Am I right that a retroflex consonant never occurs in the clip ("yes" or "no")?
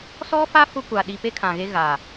yes